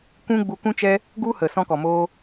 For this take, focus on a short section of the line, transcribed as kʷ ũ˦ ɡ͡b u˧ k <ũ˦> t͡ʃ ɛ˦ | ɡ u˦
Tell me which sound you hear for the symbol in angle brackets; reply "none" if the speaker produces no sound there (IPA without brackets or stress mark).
ũ˦